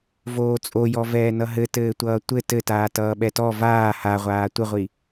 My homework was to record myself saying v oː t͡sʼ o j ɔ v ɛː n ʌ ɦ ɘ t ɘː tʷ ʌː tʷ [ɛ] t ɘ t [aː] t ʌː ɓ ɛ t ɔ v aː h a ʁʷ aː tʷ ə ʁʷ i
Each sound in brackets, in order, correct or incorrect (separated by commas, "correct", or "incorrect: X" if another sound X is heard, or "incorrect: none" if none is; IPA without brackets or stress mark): incorrect: ɘ, correct